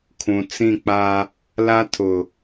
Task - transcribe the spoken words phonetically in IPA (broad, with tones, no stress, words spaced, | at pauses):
kʰũ˨t͡sĩ˦˨k͡pa˦ | la˦ tʰʊ˨